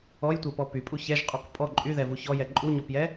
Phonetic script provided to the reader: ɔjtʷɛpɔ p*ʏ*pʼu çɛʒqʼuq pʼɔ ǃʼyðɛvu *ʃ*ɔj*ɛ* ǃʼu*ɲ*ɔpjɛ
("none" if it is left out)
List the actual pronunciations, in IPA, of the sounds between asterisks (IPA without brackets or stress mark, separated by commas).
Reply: y, ç, ɛ, ɲ